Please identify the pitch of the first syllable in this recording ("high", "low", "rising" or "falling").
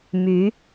rising